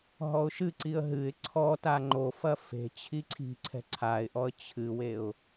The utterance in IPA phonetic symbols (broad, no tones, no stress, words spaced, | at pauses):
ɦɔʊ̯ʃɨǀiə̯ ɦɨɪ̯ ǀʰɔ taŋ͡ǃofɐ fe̤ t͡ɕʰiǀʰi̤ǀʰɛ̤ ǀʰaɪ̯ʔɔə̯ t͡ɕʰɨweʊ̯